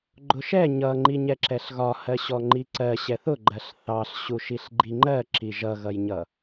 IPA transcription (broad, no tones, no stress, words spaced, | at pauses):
ɡ͡ǃʊʃɛ ɲʌŋ͡ǃi ɲɛǁɛɬɣɒ hɜɕɔŋ͡ǃiǀɜ ɕɛθʊɡ͡ǃɜɬ θɑɬɕuʃiɬ ɡ͡ǃiŋ͡ǃɜ ǁiʒʌɣʌjɲʌ